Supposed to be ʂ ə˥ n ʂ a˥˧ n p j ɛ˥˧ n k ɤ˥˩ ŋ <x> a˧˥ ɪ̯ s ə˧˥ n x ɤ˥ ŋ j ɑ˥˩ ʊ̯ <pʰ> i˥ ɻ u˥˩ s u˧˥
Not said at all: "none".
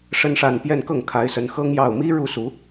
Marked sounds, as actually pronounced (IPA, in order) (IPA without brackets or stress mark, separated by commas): kʰ, m